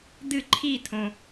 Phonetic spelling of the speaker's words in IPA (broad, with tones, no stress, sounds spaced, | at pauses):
d̪ ɨ˦˨ ǃʰ i˦˨ t̪ʰ õ˨